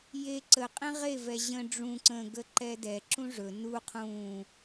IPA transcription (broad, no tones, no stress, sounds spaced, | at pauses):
j e ǀ ə qʼ ẽ ʁ e v ɛ ʑ ə̃ ɖ͡ʐ ũ ǀ ə̃ ɡ ə ǃ ɛ d ɛ ǁ ũ ʐ ɵ n u qʰ ũ